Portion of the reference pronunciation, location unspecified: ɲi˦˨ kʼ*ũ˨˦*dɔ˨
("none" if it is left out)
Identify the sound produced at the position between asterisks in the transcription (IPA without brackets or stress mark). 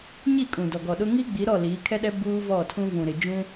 ũ˨